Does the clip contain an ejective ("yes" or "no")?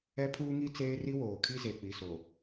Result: no